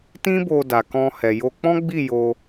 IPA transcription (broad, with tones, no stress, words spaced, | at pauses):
tĩ˦bo˧da˨ kɔ̃˧hɛ˨ jo˧ k͡pɔ̃˦ɡ͡bi˦˨ jo˧